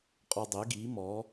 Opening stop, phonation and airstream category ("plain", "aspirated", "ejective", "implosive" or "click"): ejective